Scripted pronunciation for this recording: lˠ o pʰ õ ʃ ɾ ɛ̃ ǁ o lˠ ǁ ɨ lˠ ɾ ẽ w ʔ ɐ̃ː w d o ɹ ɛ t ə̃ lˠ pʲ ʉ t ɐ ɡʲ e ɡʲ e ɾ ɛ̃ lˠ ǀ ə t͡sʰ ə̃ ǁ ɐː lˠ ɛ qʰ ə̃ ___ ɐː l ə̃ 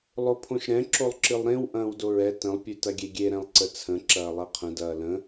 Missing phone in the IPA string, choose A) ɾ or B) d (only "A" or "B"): B